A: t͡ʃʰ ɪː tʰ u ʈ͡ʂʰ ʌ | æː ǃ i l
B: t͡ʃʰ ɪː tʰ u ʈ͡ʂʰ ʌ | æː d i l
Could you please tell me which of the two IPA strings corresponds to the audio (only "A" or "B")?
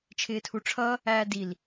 B